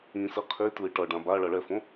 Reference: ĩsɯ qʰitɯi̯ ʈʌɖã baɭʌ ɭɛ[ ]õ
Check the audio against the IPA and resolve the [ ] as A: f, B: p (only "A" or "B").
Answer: A